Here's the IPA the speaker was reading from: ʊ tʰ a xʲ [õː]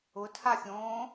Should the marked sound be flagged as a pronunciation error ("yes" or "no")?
no